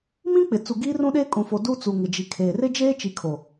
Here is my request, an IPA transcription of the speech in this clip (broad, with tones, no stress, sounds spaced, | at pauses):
m ĩ˦ k͡p ɪ˨ t͡s u˨ ɡ iː˦ r ũ˦ ɗ eː˦ kʼ ũ˨ f o˨ d u˦ t͡s u˨ ŋ ɪ˨ d͡ʒ i˨ kʰ eː˨ r ɪ˦ d͡ʒ eː˦ t͡ʃ i˨ kʰ o˨